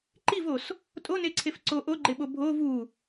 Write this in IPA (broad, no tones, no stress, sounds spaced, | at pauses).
ǃ i v o s | tʼ o n e ǀʰ e f ǀ o ʔ o ɡ͡ǃ e ɓ o bʱ o v u